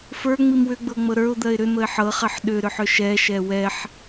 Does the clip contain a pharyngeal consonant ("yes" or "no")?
yes